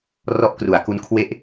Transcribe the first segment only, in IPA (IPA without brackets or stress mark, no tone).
r